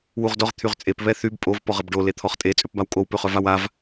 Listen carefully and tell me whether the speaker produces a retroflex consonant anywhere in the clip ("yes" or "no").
yes